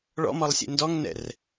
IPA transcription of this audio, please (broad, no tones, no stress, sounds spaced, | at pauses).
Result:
ɭ ɔ̰ m ɔ lˠ sʲ ḛ n d ɔ ŋ n ɛ̰ r